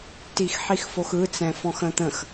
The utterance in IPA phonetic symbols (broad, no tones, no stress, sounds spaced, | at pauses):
t i x ħ i x f o x ɯ t͡s ɛ̃ f ɔ̃ x ə̃ t̪ ə̃ x